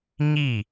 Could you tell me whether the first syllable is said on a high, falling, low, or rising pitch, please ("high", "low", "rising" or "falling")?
falling